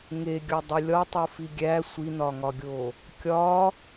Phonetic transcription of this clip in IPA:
ŋ e ɡʲ ɒ dˤ u lʲ ɒ tˤ u f i ɡʲ æ sʷ i n ɒ ŋ ɒ ɡʲ o | kʲ ɒ

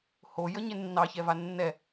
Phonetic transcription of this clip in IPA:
h o j ə ɲ e nː ɑ ç ɛ v a nː ɛ

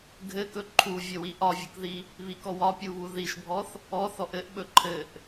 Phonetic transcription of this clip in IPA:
ɡʱ ɘ k ɵ ǃʰ u vʲ ɘ w i ʔ ɒ vʲ u k ð i | β i k ɔ w ɒ pʲ u β u ð i ʃ bʱ ɔ θ | ɔ θ ɔ ʔ ɘ ʔ ɓ ɵ ǃʰ ɘ ʔ

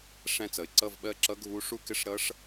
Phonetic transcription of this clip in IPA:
ʂ æ̃˥˧ t͡s ʌ˨ ɪ̯ ǀ ʌ˥˧ v ɓ ɜ˥˧ ǁ ʌ˦˥ ɡʱ u˦˥ ʂ u˥˧ k ɪ˥˧ ʂ ɾ ʌ˦˥ ʂ

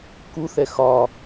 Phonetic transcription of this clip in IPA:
k u θ ɛ x ɒ

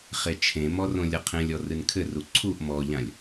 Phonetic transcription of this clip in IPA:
χ e t͡ʃʰ ẽ m ɔ r õ lʲ ɐ qʰ ẽ lʲ ɔ r ɨ n kʰ ɘ r u ǀʰ u ʔ m ɔ ʎ ã lʲ

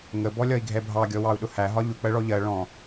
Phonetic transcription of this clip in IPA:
ŋ ə b ɔ lʲ ɒ i̯ ɡʱ ɛ bʱ ɑ ɡʲ ɔ w ɑ u̯ ɗ ʊ h æ ɦ ɒ ʎ ʊ k͡p ɜ ɭ ɔ ʎ ɜ ɭ ɔ̃

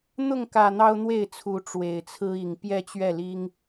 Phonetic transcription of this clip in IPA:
n̪ ʊ˥˨ ŋ k ä˨˩ n̪ ɑ˦ ʊ̯ n̪ w e˥˨ ɪ̯ t͡sʰ u˨˦ ʈ͡ʂ w e˨˩ ɪ̯ t͡sʰ ɹ̩˦ i˨˩ ŋ p j ɛ˥˨ t͡ɕ ɥ ɛ˥˨ l i˦ ŋ

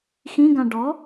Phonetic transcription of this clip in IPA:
x ĩ ɡ ã ɖ ɔ

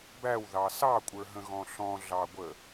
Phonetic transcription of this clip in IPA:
b æ w ð ɑ s ɑ kʷʼ ə˞ ɦ ə̃ ɣ ɔ̃ ɬ ɔ̃ ɮ ɑ ɡʷ ə

